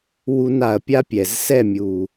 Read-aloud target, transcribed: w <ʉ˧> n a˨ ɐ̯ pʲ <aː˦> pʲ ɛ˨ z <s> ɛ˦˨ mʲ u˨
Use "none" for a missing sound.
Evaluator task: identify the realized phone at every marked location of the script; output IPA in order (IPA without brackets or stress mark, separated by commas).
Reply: u˧, a˦, s